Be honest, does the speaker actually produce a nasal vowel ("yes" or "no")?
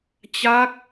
no